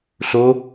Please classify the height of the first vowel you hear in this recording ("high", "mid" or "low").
mid